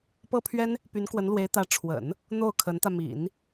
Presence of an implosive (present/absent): absent